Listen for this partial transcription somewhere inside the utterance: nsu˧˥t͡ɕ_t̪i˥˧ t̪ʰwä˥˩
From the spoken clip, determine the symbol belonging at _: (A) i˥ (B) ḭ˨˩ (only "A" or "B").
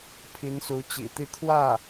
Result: B